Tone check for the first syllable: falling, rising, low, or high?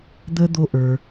high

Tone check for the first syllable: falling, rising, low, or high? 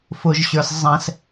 low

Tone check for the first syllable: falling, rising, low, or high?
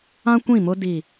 high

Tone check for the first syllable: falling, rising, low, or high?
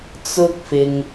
high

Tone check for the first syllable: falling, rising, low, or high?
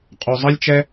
low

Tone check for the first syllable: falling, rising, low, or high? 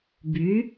rising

